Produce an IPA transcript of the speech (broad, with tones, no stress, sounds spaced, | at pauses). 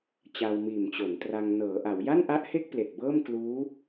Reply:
t͡ɕ a˧ w m iː˨˩ m t͡ɕ o˩˦ n t r a˧ ŋ n ɤː˩˦ ʔ a˩˦ w j a˥˩ n ʔ a˦˥ ʔ h e˥˩ k̚ p l e˨˩ k̚ b ɤː˥˩ m k l uː˦˥